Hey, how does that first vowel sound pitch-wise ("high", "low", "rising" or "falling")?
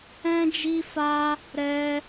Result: high